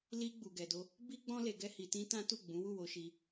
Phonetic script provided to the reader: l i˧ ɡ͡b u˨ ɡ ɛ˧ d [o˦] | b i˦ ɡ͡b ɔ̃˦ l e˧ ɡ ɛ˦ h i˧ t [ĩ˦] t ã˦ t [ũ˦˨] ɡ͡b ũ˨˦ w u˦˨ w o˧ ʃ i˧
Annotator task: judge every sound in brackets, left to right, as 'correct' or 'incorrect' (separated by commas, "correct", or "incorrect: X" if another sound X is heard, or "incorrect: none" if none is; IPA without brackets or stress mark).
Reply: correct, correct, incorrect: u˦˨